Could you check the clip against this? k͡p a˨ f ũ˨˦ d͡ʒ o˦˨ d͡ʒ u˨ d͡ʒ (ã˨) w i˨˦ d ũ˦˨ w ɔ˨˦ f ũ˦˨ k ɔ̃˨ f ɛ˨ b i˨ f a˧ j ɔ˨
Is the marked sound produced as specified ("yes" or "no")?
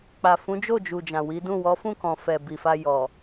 yes